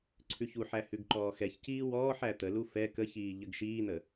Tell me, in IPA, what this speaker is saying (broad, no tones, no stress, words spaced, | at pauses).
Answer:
ǀʰʉçuħæ hʉɡǃɔːxɛçciː wɔːħ æt̪əlu fɛ kəçiː ʎəɡʃiːn̪ə